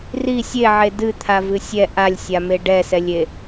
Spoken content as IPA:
r i sʲ e ʕ e d ɨ t̪ʰ a v ɨ sʲ ɛ ʔ a lʲ sʲ a m e ɖ ɛ s ɛ lʲ e

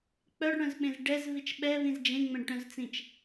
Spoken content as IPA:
k͡p œ ɖ ɽ œ̃ z ɓ ẽ z ɖ ɛ z v i t͡ʃ ɓ ɛ v ĩ z d͡ʒ ẽ ŋ͡m ɛ̃ ɖ ʈ œ̃ z t͡s ĩ t͡ʃ

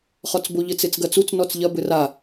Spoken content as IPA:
χ ɔ t͡s b o ʎ ɘ t͡s e t͡s ɡ ɐ t͡s u t͡s n ɔ t͡s ʎ ɐ b ɘ r a

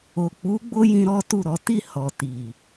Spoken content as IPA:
o˨ k͡p u˨˦ ɡ͡b o˦ j ĩ˧ ɾ ɔ˦ t u˦˨ ɾ ɔ˨˦ t i˦˨ h ɔ˨ t i˨

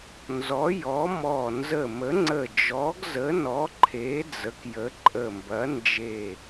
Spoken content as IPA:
n z ɔ˨˥ j ɔ˨˥ m ɔ˧˩ n z ə˧˩ m ə˨˥ ŋ͡ǀ ə˧˩ d͡ʒ ɔ˨˥ ɡ z ə˨˥ n ɔ˨˥ ǃʰ e˨˥ d͡z ə˨˥ k j ə˨˥ ǃʼ ə˧˩ m b ɐ˨˥ n d͡ʒ e˧˩

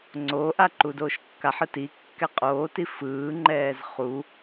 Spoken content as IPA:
ŋ͡ǀ o ʔ a ǃ u d oː ʃ kː a ħ ɯ t i kː ɛ qʼ oː t i f ɯː ŋ͡ǃ ɛː z χ u

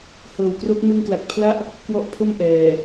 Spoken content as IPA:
h ɤː˨˩ w k r o˦˥ k̚ m ɯ˧ ŋ k l a˨˩ k̚ pʰ l a˦˥ ʔ | k w ɔ˦˥ ʔ pʰ o˥˩ m ʔ ɛː˨˩

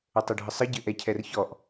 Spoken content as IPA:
ə tˤ ɵ ɖʱ ə sˤ ə ɟ ɘ ʔ ɛ cʰ ɛ r ç ɔ ʔ

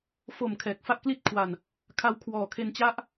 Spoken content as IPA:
f o˨˩ m kʰ ɛː˨˩ k̚ f a˥˩ ʔ k l i˥˩ t̚ kʰ w a˧ n | kʰ a˧ w kʰ w ɔː˨˩ kʰ e˧ n t͡ɕ a˦˥ ʔ

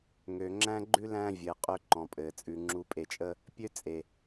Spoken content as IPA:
ŋ ø˨ ŋ͡ǁ æ̃˦ ɡ͡ǃ ʉ˦ l æ̃˦ vʲ ɘː˨ qʼ ø˦ ǃ ɔ̃˨ pʼ ɘː˨ t͡sʼ ʉ˨ ŋ͡ǁ u˨ pʼ e˨ t͡ʃʼ ə˦ | pʲ ø˦ t͡sʼ e˨

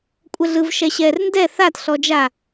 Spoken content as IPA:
kʷʼ ɛ ɮ ɯ v ʃ ɛ ɕ ɛ r n d ɛ θ a t ɬ ɔ d͡ʒ a

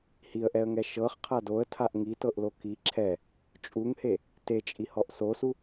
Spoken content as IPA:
h i ə̯ ʔ ɛ ə̯ ŋ ɛ ʃ ɤ χ qʰ a d o ə̯ tʰ a ʔ ŋ i t ɤ ʔ l o k i ǁʰ ɛ | t͡ʃʼ u ŋ h e | t e t͡ʃʼ i h ɔ ʔ s o s u

